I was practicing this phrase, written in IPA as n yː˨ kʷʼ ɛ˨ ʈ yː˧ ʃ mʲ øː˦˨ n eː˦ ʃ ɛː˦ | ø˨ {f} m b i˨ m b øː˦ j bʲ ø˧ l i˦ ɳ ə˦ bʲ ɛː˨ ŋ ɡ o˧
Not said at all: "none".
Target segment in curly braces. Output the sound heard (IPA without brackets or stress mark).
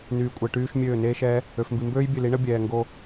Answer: f